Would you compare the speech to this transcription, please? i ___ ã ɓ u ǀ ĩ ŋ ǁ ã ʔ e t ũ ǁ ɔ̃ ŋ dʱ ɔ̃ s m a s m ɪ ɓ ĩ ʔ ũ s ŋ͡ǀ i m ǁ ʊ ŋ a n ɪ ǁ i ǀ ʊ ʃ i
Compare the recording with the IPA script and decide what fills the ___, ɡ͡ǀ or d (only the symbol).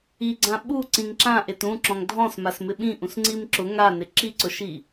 ɡ͡ǀ